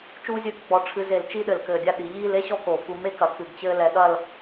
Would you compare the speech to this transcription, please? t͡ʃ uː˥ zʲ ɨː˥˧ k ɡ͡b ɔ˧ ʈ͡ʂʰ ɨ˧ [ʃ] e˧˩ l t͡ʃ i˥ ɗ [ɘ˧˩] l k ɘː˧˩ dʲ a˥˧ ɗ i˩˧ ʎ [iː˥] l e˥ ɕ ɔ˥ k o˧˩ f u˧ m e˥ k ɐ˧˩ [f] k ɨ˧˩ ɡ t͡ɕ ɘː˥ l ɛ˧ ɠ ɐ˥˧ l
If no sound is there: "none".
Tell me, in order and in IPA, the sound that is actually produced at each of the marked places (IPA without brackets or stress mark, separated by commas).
z, ɘ˧˩, iː˥˧, none